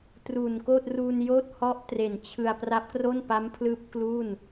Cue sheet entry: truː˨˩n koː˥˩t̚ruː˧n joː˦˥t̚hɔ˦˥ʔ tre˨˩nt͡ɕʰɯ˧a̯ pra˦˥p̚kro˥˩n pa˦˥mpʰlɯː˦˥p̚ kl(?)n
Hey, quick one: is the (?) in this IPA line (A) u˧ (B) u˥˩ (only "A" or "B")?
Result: B